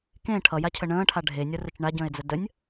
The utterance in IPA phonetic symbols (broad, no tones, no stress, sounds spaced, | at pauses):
k ẽ ʈʰ ʌ j a cʰ ə ɳ ə̃ː ʈʰ a ɖʱ e nʲ ʌ r ə t͡ʃ ɳ a ɟ ə̃ː e̯ d͡z ə d ə nʲ